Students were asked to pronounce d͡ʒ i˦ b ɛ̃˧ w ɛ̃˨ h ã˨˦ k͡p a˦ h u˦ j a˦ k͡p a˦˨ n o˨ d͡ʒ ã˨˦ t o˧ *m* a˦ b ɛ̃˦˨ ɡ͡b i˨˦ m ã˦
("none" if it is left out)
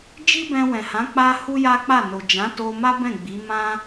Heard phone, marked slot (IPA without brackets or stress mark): m